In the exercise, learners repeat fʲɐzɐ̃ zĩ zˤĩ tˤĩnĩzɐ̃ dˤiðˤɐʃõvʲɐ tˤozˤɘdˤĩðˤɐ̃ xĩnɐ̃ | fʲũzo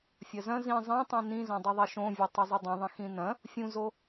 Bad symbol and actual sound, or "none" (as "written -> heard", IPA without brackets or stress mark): none